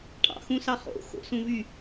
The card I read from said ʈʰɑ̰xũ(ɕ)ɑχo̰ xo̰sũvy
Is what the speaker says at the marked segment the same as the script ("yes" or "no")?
no